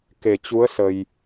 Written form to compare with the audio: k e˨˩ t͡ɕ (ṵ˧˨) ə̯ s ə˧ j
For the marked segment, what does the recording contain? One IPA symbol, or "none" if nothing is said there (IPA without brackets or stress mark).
u˨˦